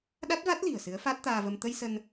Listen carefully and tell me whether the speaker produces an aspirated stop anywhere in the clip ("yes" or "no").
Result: no